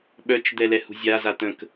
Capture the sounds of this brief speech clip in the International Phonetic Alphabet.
ɓ œ t͡ʃ d̪ ɛ l ɛ h ṳ zʲ a z a t̪ ə̃ k

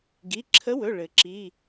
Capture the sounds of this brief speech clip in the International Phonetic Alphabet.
ɡ i˩˧˩ ǁʰ ə˨˥ w ɵ˩˧˩ ɭ ɘ˩ ǁ i˩˧˩

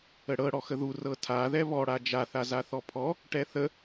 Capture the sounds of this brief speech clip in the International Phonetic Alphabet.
ə ɽ ɤ ɽ ɔ x ə ð u r ɤ tʰ a ð ɛ β ɔ ɽ a d͡ʒ a θ a z a θ ɔ pʰ ɔ | ʈ ɛ θ ə

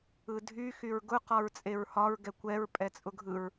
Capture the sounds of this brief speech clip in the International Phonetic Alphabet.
ɯ dʱ y x y ɹ ɡ ʊ q ɒ ɹ t͡sʼ e ɹ h ɒ ɹ ɡ ɛ kʷ ɛ ɹ pʼ ɛ t͡sʼ ʊ ɡʱ ɯ ɹ

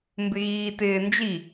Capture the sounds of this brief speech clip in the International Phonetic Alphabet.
m b ɪ ɣ iː t ɪː n d͡ʒ i

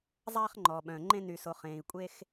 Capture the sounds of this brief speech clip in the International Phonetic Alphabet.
zˤ aː˧ χ ŋ͡ǃ ɔː˩ ɓ œ̃ː˩ ŋ͡ǃ ẽ˧ n y˩ s o˩ χ ẽː˩ i̯ kʷʼ e˧ x

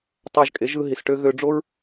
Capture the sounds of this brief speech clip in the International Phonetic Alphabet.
tˤ ɑ˧ ʒ kʼ e˨˦ ʒ ɯ˧ ɦ i˨ s ʈ ø˧ ɣ ø˧ ɖ͡ʐ o˦ ɹ

